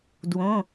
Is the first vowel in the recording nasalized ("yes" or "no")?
yes